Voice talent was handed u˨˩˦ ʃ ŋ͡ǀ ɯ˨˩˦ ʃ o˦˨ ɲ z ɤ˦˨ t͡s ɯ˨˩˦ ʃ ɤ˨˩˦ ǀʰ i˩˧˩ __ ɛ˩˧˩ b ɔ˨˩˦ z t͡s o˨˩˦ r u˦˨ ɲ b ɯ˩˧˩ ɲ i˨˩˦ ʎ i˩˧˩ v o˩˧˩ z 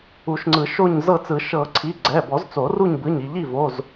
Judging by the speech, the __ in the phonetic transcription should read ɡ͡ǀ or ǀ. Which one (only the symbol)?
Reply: ɡ͡ǀ